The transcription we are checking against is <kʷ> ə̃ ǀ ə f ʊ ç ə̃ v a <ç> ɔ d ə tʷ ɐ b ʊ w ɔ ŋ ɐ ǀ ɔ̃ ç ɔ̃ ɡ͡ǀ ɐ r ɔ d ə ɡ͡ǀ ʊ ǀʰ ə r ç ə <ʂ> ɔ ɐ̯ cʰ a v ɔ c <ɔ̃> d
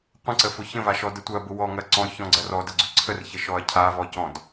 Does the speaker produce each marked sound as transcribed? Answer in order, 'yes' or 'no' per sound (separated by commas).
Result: no, no, no, yes